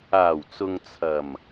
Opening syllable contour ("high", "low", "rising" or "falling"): low